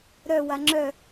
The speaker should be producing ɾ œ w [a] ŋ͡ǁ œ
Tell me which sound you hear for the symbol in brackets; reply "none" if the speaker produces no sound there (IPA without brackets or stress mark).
a